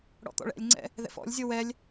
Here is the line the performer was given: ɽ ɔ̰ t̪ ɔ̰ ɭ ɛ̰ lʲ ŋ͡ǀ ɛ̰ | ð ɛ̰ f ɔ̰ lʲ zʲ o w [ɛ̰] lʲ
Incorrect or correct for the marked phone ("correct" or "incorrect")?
incorrect